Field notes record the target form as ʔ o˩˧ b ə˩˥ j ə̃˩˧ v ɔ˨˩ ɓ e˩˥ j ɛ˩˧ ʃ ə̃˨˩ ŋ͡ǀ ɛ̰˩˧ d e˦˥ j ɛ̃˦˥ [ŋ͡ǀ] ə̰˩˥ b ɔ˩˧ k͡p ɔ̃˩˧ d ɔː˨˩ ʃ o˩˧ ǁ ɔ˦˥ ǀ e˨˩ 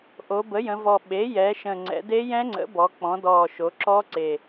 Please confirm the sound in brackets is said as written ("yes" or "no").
yes